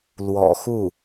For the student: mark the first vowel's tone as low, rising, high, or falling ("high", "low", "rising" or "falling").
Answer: low